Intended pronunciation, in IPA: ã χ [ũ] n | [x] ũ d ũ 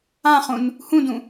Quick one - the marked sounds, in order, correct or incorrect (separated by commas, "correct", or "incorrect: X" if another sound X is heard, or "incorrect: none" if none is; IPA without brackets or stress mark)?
correct, incorrect: h